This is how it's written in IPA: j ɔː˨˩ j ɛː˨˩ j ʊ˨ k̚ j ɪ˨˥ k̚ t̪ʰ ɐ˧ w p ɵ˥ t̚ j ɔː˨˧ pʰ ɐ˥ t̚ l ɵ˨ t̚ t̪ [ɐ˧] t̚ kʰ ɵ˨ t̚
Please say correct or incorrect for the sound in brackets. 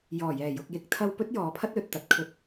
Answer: incorrect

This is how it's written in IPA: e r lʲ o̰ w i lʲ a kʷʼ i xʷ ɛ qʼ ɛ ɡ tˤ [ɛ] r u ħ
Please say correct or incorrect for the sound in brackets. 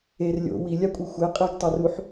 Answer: correct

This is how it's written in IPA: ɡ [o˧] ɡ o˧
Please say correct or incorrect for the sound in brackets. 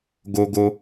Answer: correct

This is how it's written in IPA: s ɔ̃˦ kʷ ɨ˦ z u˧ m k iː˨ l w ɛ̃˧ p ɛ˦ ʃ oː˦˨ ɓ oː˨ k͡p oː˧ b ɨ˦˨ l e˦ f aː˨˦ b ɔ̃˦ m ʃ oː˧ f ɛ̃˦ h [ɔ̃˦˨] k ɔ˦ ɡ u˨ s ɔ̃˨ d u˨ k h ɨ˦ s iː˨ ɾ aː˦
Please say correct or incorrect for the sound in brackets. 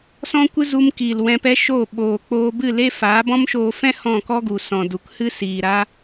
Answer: correct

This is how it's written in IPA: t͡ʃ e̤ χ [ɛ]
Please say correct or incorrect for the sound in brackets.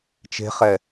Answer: correct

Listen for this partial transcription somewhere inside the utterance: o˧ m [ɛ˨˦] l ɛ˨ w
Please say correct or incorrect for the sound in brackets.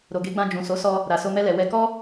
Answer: incorrect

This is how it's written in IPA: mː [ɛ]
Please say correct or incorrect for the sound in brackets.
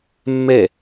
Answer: correct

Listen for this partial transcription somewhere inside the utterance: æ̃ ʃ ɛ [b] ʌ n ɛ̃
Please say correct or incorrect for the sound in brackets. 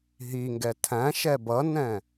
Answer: correct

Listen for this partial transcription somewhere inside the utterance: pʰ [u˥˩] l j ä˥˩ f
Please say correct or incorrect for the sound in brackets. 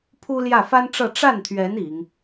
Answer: incorrect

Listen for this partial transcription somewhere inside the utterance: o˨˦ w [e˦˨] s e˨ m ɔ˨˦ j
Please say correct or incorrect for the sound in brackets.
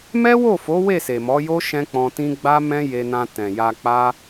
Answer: correct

